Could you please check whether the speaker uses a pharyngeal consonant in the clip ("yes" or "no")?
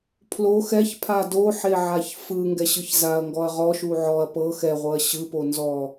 yes